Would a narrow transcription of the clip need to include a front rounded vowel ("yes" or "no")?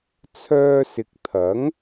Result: yes